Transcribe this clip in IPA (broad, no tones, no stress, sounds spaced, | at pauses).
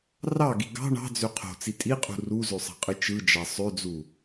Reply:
r ɑ ɡ i ɡ ɑ̤ ɳ ɑ̤ d͡z ø qʰ o̤ t͡s i tʼ i qʼ ṳ r u z ø sˤ ɑ̤ qʼ ɯ t͡ʃ ɯ d͡ʒ ɑ sˤ ø d͡z u